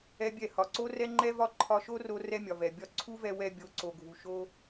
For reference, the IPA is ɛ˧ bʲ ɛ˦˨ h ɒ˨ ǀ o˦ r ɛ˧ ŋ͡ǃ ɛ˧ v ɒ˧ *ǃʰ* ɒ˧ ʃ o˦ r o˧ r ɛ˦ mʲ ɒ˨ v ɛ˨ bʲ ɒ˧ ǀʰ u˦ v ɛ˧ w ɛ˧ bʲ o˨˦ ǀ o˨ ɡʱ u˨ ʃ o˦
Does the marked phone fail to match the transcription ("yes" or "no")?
no